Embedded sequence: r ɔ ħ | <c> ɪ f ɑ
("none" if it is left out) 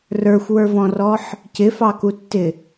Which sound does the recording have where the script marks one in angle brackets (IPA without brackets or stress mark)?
c